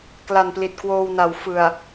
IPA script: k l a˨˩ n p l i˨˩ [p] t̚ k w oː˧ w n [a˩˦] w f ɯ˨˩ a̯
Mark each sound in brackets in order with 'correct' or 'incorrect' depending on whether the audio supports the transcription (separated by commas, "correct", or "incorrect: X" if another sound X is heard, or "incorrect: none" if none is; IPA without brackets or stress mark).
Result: incorrect: none, correct